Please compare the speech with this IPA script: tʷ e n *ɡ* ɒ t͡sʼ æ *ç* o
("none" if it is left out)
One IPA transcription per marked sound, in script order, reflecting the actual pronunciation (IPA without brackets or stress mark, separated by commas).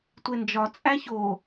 d͡ʒ, ç